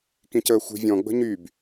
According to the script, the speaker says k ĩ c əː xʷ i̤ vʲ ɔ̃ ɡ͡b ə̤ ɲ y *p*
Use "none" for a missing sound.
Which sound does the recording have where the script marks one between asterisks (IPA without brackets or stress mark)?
b